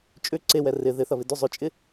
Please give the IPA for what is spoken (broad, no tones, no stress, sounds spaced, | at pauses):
t͡ʃʼ ʏ ǀ e w ɛ r ɪ ð ɪ θ ɐ β ɪ d ʏ zˤ ʏ t͡ʃʼ ɪ